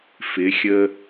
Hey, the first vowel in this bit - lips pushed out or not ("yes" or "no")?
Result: no